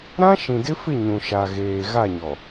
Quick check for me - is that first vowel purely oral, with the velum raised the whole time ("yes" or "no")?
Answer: no